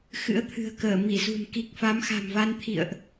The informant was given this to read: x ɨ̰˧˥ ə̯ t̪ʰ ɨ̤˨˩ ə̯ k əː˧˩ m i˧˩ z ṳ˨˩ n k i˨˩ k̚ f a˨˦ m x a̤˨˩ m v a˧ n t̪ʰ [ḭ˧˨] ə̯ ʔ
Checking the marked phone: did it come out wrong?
no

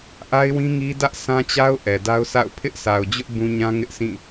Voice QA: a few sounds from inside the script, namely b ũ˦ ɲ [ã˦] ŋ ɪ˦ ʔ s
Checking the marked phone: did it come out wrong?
no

